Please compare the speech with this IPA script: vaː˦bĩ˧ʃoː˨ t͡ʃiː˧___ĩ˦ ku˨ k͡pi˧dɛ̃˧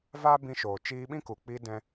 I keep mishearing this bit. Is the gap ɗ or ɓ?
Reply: ɓ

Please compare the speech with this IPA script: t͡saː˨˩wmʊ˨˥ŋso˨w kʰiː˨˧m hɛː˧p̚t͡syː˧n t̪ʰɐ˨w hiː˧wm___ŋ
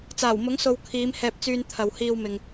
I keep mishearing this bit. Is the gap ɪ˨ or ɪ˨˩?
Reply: ɪ˨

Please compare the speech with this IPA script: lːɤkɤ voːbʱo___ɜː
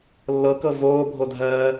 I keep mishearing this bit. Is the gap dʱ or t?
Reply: dʱ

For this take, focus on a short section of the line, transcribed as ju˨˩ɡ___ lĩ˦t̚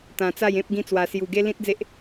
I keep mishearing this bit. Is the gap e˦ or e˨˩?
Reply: e˦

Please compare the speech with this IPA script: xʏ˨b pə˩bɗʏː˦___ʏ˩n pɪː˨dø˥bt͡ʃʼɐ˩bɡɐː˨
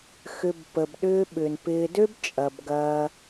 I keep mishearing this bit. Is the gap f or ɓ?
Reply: ɓ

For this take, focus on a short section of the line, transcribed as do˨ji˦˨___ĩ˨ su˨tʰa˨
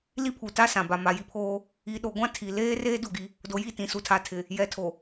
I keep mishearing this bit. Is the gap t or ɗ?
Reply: t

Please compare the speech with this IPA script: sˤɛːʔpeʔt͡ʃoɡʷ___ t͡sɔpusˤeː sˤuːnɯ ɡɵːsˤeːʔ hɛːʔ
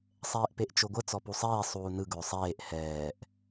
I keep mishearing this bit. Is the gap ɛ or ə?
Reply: ə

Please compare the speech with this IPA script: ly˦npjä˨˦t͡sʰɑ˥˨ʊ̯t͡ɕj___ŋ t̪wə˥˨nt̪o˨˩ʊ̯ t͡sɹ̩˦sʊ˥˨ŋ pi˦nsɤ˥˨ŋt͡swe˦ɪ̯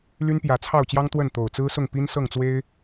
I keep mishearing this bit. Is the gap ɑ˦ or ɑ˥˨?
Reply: ɑ˦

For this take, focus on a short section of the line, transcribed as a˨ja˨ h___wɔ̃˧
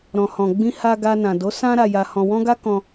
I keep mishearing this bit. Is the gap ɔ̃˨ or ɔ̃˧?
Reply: ɔ̃˨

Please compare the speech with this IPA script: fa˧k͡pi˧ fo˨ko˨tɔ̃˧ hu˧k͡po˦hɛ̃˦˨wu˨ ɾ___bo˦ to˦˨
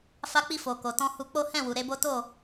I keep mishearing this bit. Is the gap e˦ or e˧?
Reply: e˧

